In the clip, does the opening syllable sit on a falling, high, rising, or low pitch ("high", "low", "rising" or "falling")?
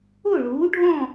falling